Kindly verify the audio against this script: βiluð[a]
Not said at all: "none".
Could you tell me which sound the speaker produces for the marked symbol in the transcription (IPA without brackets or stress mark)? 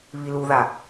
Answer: a